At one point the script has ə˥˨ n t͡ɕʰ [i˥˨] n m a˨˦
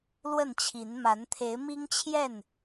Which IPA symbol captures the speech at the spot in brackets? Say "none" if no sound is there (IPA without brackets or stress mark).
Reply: i˨˦